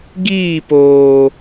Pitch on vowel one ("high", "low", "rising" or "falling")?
falling